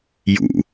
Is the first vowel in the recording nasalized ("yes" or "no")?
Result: no